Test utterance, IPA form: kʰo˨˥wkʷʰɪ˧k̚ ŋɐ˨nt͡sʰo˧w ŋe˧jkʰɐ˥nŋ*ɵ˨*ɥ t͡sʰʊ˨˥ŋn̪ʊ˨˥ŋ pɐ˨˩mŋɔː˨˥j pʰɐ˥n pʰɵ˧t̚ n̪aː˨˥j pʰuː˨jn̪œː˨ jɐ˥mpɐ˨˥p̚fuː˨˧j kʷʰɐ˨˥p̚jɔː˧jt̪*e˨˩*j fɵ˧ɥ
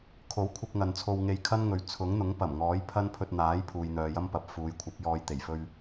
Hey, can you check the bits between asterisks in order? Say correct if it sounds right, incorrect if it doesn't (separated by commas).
correct, correct